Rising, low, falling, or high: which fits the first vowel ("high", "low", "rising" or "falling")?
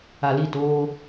low